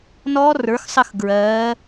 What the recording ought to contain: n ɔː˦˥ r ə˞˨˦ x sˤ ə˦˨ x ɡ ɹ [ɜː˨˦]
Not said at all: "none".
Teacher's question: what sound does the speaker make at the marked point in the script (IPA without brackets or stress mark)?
ɜː˨˦